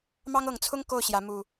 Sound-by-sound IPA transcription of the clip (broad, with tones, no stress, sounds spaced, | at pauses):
m ɑ˦ ŋ ɤ˨˦ ŋ t͡sʰ ʊ˦ ŋ k o˥˨ ʊ̯ ɕ j ä˨˦ m u˨˩